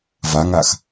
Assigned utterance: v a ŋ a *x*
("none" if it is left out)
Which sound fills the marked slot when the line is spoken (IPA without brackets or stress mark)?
x